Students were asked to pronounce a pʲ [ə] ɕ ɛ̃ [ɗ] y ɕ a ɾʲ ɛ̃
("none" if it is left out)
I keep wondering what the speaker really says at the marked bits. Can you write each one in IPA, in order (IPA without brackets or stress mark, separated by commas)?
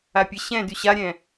ə, d